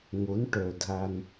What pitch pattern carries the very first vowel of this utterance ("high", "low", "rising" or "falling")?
rising